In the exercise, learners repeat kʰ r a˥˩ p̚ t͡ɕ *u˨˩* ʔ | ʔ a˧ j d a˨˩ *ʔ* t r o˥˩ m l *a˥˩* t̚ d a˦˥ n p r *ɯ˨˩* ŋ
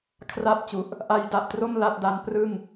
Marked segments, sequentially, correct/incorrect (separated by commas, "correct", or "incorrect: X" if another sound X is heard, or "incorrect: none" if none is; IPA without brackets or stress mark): correct, correct, correct, incorrect: ɯ˥˩